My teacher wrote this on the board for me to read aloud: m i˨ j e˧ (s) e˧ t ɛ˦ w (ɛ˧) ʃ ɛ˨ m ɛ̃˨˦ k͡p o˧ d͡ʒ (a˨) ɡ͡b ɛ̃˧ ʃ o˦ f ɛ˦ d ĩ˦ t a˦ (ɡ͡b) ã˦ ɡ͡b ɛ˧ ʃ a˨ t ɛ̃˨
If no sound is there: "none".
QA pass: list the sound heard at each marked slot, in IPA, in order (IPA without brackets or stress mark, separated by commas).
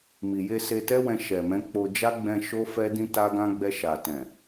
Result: s, ɛ̃˧, a˦, ɡ